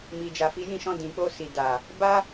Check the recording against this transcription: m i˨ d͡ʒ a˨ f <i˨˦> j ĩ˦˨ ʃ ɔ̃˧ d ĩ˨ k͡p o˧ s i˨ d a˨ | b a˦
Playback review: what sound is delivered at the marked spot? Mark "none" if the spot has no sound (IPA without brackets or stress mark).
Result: i˨˦